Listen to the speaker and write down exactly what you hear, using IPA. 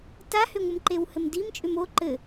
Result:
t a h ʏ ŋʷ ə m ǃ e w h ɘ m d i m t͡ʃʼ ʏ m o ǃ ɘ

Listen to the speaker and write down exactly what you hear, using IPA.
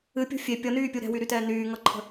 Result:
ɨ pʲ o̤ fʲ e pʲ ʌ n yː pʲ u ɾ ɛ̤ w y ɾ y t ɛː n yː ŋ ʌ ǃʰ ə̤

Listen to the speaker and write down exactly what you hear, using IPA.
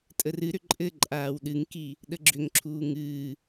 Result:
tʼ ə r ɨ ɾ ʏ ǃʼ ɘ ǃʼ aː w ɗ ɨ ŋ k i | ɗ ə ɡ͡ǁ ʏ ŋ ǁʰ uː ŋ ɨː

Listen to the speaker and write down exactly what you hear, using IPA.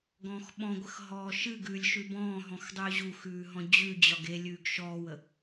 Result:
ɡ ɔ̃ː x ɓ ɔ̃ ɡʷ ə x ɦ ɔː ʃ ɨ ɡ ʉː lʲ ʃ ʉ b ɔ̃ː ɦ ɔ̃ x dˤ ʉː ʑ u x ʉː ɦ ɔ̃ d͡ʑ ʉ d͡ʑ ɒ ɡ e lʲ ʉː ɡ ʃ ɔː w ə

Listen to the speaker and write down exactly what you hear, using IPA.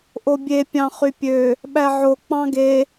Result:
ʔ o bʲ e pʲ ɑ̃ χ y pʲ ø | ɓ æ ʕ o k͡p ɑ̃ ɡ e

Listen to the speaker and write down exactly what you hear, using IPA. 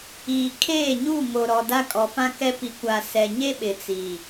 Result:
iː˨ kʰ eː˦˨ ɲ u˦˨ ŋ o˨ ɾ ɔ˨ d a˦ kʼ ɔ˨ f ã˦ k ɛ˦ p i˨ kʷ a˨ s ɛ˨ ɲ e˦ ɓ ɪ˨ t͡s iː˨

